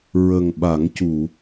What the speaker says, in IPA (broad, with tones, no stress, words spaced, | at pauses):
ɹə˨˩ŋɓa˨˩˦ŋcu˨˩˨